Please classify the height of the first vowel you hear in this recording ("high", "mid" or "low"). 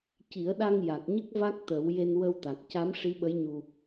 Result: high